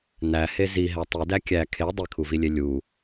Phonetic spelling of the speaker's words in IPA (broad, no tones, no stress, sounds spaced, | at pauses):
n æ h e z i ɦ æ tˤ i d æ kʲ æ kʰ e dˤ i kʰ u v i lʲ e lʲ u